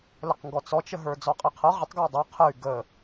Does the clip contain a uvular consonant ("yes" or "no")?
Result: yes